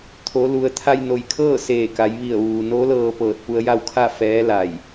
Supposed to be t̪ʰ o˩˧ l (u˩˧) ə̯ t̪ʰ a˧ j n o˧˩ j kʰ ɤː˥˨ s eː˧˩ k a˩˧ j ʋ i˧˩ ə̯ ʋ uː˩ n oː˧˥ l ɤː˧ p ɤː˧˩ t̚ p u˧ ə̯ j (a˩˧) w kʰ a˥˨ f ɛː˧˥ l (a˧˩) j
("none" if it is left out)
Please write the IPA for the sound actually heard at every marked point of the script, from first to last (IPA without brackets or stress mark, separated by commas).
u˩, a˥˨, a˧˩